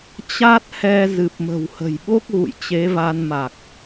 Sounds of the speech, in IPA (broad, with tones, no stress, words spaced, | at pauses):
t͡ɕa˦˥t̚hɛ˧ zɨ˨˩p̚mə̤˨˩whə̤˨˩jɓo˦˥k̚ ɣṵ˧˨jt͡ɕe˨˦va˧nma˨˩k̚